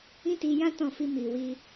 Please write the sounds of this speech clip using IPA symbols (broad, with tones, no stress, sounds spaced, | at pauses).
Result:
ĩ˦ t i˧ j ã˦ t ɔ̃˦˨ f i˧ m i˨ w i˧